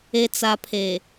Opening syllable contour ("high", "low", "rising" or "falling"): low